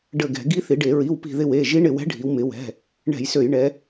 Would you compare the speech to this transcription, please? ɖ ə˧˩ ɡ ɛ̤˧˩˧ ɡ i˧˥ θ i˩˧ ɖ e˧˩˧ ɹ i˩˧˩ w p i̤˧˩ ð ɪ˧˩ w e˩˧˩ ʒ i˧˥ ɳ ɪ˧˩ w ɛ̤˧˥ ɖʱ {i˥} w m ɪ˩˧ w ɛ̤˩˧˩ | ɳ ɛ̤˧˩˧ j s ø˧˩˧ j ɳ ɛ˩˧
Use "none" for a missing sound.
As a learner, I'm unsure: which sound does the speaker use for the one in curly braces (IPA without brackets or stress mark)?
i˩˧